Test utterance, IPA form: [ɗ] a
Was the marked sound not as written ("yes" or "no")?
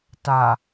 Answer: yes